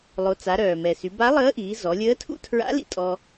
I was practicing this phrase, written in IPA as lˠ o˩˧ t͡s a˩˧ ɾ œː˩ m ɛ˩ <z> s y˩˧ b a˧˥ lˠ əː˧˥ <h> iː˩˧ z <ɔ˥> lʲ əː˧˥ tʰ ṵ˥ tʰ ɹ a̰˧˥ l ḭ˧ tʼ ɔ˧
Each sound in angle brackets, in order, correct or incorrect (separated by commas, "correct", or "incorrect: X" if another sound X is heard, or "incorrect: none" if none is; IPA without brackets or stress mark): incorrect: none, incorrect: ʔ, incorrect: ɔ˩˧